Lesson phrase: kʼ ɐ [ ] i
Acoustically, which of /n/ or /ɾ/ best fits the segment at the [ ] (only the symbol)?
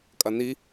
n